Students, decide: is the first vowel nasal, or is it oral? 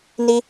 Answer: oral